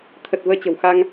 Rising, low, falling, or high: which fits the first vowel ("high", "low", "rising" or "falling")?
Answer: low